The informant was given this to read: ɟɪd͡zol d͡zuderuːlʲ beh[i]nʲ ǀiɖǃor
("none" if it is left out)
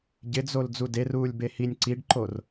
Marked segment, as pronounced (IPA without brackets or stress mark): i